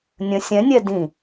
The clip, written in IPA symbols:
nʲ ə̃ sʲ ɛ̃ nʲ ɛ d ĩ

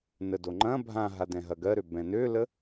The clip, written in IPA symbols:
n ə d o ŋ͡ǃ ɐ̃ bʱ ã ɦ a d ɛ̃ ɦ ɐ ɡ ɜ ɾ ø b ɛ̃ n ø l ə

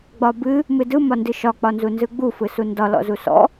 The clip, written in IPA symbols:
ɡ͡b ɒ b ɨ | m ɨ d ɯ m ɒ n d ɨ ʃ ɒ k͡p ɒ n z u n z ɯ ɡ͡b u f ɯ s u n d ɒ l ɔ̰ z u s ɔ̰

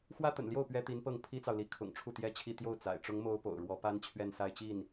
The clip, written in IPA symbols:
x w ä˥ t̪ ə̰˨˩ n l j o˥˩ ʊ̯ p ɥ ɛ˥ t̪ i˧˥ n p ɤ˥˩ ŋ pʰ i˥ t͡s ɑ˨ ʊ̯ l i˧˥ kʰ ʊ̰˨˩ ŋ ʈ͡ʂʰ u˥˩ t̪ j ɛ˥ t͡ɕʰ i˥˧ t̪ j o˥˩ ʊ̯ t͡s a̰˨˩ ɪ̯ ʈ͡ʂ ʊ˧˥ ŋ m o˧˥ ʊ̯ p o̰˨˩ ʊ̯ ɻ w ɔ˧˥ p a˥ n t͡ɕʰ ɥ ɛ˥˧ n s a˥˧ ɪ̯ t͡ɕ i˥˩ n

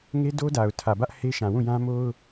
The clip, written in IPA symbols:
ŋ e˦ d o˦ d a˨ ʊ̯ tʰ ä˨ b ä˦ ʔ h e˦ ʃ ã˨ w ũ˦˨ j ã˦ m o˦ ʊ̯

